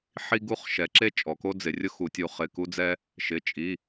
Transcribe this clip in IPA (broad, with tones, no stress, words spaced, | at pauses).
ħi˦ɡu˦χ ʃɛ˩˧ǁe˦ t͡ʃʼɔ˩˧ko˦d͡zɪ˩˧rʲʊ˦ xu˩˧tʲu˩˧ χɪ˩˧˩ku˦d͡zɛ˦ | ʃɪ˩˧˩t͡ʃʼi˩˧˩